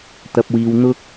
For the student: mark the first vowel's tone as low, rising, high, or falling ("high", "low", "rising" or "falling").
low